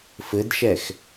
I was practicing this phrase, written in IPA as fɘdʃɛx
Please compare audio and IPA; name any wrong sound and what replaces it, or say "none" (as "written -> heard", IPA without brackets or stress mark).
none